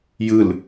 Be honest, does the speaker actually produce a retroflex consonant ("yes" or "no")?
no